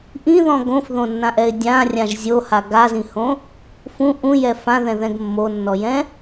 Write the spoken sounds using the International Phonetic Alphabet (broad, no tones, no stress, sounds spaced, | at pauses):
ʔ ĩ ð ɔ̃ ɡ õ f ð õ nː ã ʔ ɛ ɪ̯ dʲ ã rʲ ã ʒ zʲ o h a ɡ a z ĩ h õ | f ũ ʔ ũ j ɛ f ã ð ɛ̃ ð ɛ̃ ɡ mː o nː ɔ j ɛ̃